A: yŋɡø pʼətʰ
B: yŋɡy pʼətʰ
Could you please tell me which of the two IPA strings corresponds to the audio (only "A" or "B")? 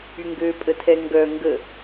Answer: A